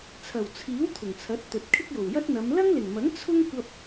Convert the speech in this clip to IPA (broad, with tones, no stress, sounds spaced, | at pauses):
t͡sʰ ɐ˨˩ w t͡sʰ iː˨˥ w t̪ʰ ʊ˨˩ ŋ t͡sʰ ɐ˨˥ t̚ t̪ ɵ˨ t̚ kʰ ɪ˥ k̚ j o˨˩ w j ɐ˥ t̚ n̪ ɐ˨˧ m l ɐ˥ ŋ l ɪ˨˩ ŋ m ɐ˨˥ ŋ t͡sʰ ʊ˥ ŋ kʷ ɐ˧ p̚